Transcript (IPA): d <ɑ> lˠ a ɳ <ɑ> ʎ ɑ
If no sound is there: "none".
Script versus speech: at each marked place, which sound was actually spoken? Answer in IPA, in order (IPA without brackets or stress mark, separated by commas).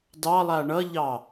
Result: ɑ, ʌ